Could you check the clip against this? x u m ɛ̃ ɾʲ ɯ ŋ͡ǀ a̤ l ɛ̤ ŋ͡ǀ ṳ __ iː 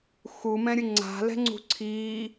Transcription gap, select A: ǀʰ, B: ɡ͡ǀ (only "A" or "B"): A